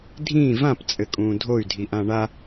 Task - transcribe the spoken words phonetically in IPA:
dʱĩ vãpt͡sʼɘkʼũː dʱoy̯dʱiʔã ɳa

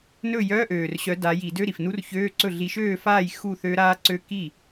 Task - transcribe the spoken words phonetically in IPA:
nɵ˥˩jœ˧˥˧ʔøː˨˩rɕœ˨˦ da˨˦ji˧˩˧dø˧˥˧ ɾi˨˩fnu˦˥rçøː˧˥˧ǀɵ˥˩ ɮi˨˦ʃøː˥˩faː˥˩j xu˥˩θø˦˥ɾaː˦˥ǀø˦˥ ki˥˩

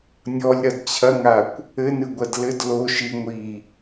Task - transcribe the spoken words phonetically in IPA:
nʲɔlʲɾɐd t͡ɕʰɐŋakʷ | ɘnɨɡʷɐd lɘd lo ʃi ŋʷi

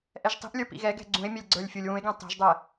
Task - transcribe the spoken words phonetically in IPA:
ʔɛʒtˤi̤ʔlʲə˞ pḭɣɛ ɡɛ̤ɡ͡ǀũe̯ mʲɛlʲɡ͡ǀə˞lʲfʲulʲ wũe̯ɡɛ̃ tˤɛ̤ʒdˤɛ

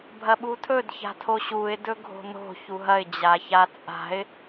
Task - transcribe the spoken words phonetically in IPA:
bʱɐɓutʰɵd ça̤tʰoɕuɪ̯ dɵɡʱo̤no̤ çuɦɐɪ̯ d͡ʑaçat͡sʼa̤ɪ̯

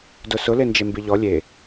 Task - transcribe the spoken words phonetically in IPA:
dʊsʊ lend͡ʒembiʎɔ lʲe

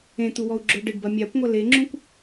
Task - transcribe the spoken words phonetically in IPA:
ẽt̪uwɔu̯ɡ͡ǁo ɖɘɖbɐ mʲakʷŋʷɐ leŋ͡ǁũkʷ

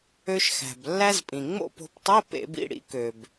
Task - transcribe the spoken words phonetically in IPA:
ø˧ʃ xæ̤˩blːæ˧zpʼĩ˩ ŋ͡mo̰˥˨po̤˧ptˤi˧˥˧ pḛ˧˩˧bḭ˥˨ ɽḭ˩˥kø˩b

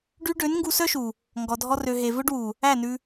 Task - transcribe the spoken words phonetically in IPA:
ɖy˧ ɖø˨˦nŋɡu˧sœ˦ʃu˨ | ŋɡɔ˨dʱɔ˧ rø˨ ɦe˨vɵ˦ɖwu˨ | æ˦˨nʉ˧

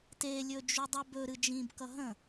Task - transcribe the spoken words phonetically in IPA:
te lʲɵd͡ʒudˤʌbɵ ɾɨd͡ʒĩb kʌɦə̃

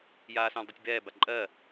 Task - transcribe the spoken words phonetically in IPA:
jaːsœ̃ldˤutʲbɛː baǃʼɜ

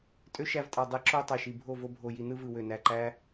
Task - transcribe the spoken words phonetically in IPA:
tʼø˦ʃæ˧vtʼɑ˨ dˤe˧ǁo˦ tˤe˨ʃi˨ bʱo˦˨ vo˧bʱo˨ji˨ nɯ˦vɯ˨ wø˨næ˨ǃæ˦

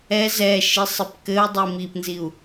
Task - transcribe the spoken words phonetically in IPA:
ɛ zɛ ʃisˤɨpkɘu̯ dˤimipnziu̯

